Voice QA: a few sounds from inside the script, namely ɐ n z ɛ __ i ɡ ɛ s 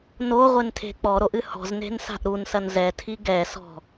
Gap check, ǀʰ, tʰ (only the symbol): tʰ